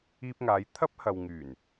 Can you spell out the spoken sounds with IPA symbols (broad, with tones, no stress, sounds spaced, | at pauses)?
iː˧ p̚ ŋ aː˨˧ j t̪ʰ ɐ˥ p̚ h ɐ˨ w ŋ yː˨˩ n